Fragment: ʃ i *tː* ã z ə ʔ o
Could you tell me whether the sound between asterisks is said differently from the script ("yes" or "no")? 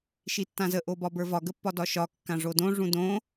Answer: no